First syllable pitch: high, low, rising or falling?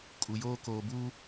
low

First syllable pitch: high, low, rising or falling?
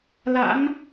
rising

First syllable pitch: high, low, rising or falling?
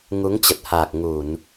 rising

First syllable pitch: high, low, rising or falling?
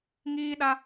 high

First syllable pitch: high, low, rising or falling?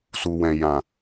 low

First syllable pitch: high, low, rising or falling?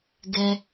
high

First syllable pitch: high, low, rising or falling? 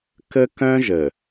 high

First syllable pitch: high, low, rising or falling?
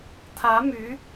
rising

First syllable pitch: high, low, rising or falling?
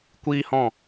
high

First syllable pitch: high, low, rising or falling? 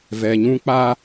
low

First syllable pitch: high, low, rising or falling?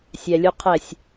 low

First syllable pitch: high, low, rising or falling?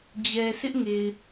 low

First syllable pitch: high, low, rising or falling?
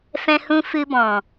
high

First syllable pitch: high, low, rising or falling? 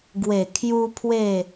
low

